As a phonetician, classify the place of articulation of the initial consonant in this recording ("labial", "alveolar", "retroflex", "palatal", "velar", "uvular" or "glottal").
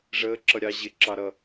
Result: retroflex